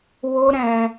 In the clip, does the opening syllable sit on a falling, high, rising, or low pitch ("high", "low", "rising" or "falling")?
high